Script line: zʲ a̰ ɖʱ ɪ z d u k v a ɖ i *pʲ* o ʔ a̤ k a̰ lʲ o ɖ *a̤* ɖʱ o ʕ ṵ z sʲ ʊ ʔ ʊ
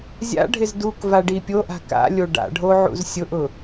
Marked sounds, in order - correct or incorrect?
correct, incorrect: a̰

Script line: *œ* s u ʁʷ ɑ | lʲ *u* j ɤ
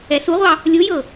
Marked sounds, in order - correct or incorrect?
incorrect: ɛ, correct

